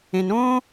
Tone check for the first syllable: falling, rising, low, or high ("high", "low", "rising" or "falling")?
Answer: low